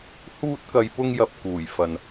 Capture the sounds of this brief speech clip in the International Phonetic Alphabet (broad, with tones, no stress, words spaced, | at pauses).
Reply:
huː˧t̚kɐ˨jpʊ˧ŋjɐ˨p̚ kuː˨˩jfɐ˨n